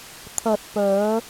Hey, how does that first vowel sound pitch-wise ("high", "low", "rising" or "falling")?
low